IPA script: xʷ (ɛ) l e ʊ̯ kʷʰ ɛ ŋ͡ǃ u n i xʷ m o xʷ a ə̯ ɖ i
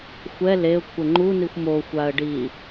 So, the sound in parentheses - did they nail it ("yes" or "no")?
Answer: yes